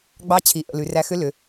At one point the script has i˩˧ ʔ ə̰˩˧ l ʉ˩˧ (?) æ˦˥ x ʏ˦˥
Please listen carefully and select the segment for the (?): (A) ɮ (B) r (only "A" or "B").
B